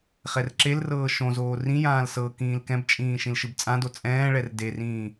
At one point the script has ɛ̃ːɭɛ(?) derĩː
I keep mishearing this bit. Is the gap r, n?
r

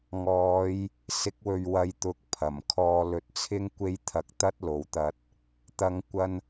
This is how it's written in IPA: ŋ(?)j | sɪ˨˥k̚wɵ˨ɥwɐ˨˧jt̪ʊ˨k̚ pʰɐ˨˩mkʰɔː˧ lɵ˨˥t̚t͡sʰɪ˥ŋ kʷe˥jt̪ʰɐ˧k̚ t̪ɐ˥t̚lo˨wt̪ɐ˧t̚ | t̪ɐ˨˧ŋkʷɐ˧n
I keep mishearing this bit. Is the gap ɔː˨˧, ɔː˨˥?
ɔː˨˧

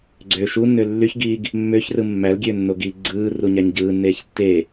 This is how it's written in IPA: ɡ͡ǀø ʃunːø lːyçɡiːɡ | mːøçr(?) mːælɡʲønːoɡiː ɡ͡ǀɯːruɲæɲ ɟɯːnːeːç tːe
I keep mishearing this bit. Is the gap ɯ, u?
ɯ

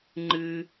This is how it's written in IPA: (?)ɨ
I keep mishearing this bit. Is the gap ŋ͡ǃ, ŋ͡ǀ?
ŋ͡ǃ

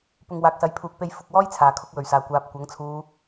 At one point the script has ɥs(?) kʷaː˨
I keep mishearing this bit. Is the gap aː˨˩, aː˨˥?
aː˨˩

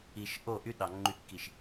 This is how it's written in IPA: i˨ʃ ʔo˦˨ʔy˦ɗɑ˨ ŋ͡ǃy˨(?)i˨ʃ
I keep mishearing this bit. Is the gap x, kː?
kː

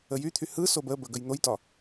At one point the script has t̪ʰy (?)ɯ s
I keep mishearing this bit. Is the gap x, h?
h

